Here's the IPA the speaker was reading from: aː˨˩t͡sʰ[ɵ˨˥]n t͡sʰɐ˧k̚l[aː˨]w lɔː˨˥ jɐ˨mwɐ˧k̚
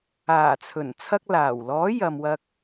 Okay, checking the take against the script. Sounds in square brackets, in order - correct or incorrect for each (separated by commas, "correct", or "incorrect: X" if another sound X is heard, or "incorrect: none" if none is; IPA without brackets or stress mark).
incorrect: ɵ˨˩, incorrect: aː˨˩